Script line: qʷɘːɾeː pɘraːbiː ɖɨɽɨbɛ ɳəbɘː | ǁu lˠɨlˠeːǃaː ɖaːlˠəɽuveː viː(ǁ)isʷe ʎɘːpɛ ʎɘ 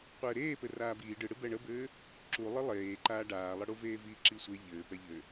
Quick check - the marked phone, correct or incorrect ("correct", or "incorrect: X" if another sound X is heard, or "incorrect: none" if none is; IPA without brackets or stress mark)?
correct